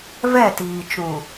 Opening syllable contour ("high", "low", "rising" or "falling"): falling